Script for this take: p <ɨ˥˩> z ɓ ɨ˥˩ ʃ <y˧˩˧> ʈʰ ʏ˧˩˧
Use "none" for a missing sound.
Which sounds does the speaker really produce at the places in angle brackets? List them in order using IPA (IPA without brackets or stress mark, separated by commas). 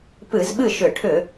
ɨ˧˩˧, ʏ˧˩˧